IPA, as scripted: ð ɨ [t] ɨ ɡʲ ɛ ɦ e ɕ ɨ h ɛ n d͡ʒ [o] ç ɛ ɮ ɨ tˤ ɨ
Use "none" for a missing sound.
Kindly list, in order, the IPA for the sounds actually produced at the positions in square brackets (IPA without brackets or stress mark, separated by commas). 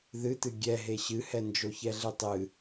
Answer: t, o